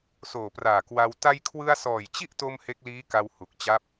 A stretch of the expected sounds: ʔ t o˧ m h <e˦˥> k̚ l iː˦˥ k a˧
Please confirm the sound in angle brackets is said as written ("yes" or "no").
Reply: yes